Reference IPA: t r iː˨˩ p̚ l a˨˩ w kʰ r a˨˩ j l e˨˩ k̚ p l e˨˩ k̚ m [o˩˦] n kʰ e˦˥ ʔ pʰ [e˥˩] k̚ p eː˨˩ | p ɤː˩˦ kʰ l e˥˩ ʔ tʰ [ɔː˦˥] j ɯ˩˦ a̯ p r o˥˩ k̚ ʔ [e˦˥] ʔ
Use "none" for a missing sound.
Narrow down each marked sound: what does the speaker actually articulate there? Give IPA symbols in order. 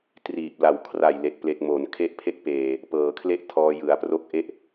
o˩˦, e˦˥, ɔː˧, e˥˩

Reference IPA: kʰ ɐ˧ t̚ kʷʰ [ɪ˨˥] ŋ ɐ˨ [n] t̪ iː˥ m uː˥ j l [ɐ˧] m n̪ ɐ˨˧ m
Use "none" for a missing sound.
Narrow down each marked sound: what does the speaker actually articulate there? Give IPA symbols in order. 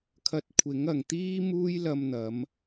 ɪ˨˥, ŋ, ɐ˧

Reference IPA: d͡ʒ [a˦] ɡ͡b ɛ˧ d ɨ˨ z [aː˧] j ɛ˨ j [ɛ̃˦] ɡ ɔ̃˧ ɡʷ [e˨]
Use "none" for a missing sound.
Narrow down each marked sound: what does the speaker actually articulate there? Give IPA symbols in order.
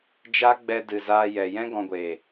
a˦, aː˧, ɛ̃˦, e˨

